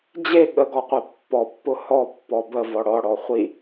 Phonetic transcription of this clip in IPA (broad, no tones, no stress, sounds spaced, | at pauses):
d͡ʑ e ɠ ə ɡ ɔ qʷ e pː ɔ pː ʊ h ɔ pː ɔ b ə v ɔ ɽ ɔ ɽ ɔ χʷ i